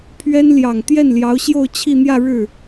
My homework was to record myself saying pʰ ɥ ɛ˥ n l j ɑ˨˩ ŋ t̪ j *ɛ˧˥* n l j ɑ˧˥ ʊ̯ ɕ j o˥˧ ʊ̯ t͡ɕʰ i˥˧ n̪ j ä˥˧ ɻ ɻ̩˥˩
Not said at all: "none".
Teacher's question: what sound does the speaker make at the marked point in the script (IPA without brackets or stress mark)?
ɛ˥˩